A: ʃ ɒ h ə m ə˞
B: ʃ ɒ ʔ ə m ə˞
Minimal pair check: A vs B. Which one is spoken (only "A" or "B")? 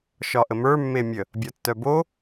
B